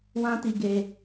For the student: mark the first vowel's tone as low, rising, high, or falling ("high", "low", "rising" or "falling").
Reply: high